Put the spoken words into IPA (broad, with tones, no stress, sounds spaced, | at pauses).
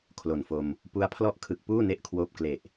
kʰ l o˨˩ n f o˧ m | p u˦˥ a̯ pʰ l ɔ˥˩ ʔ kʰ ɯ˨˩ k̚ p uː˥˩ n e˦˥ ʔ kʰ w oː˦˥ p̚ k l e˨˩ ʔ